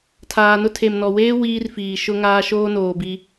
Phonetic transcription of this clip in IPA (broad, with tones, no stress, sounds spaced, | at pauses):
tʰ aː˨ n ʊ˦ tʰ e˨ m n ɔ˨ w eː˦ w iː˦ r f iː˨ ʃ ʊ˦ ŋ aː˦ ʃ oː˦ n oː˨ b i˦